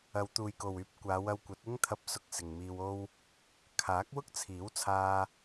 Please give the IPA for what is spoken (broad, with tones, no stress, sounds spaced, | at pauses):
ɐ˨˧ w t̪ uː˨ j k o˨ w yː˧ p̚ kʷ aː˨˧ w ɐ˧ w kʷ ɐ˨˥ t̚ ɪ˥ ŋ t̪ʰ ɐ˧ p̚ s ʊ˧ k̚ s ɪ˨ ŋ m iː˧ w o˥ w | kʰ aː˨˥ k̚ w ʊ˥ k̚ t͡sʰ iː˨˥ w t͡sʰ aː˧